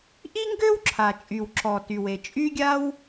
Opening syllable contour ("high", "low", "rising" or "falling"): high